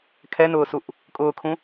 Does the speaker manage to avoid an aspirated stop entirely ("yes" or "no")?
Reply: no